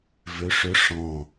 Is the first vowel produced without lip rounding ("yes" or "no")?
no